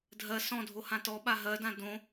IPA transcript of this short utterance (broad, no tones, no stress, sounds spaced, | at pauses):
dʱ ɜ s ɔ̃ dʱ o h ã t ɔ ɓ a ɦ ɜ d ã d õ